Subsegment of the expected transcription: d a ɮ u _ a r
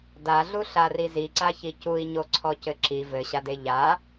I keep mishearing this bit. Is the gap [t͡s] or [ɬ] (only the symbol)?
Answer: ɬ